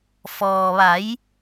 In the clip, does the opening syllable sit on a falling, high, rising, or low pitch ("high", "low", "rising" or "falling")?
low